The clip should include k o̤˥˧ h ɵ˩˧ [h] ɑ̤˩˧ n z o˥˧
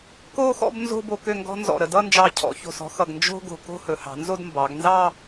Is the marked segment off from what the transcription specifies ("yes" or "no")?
no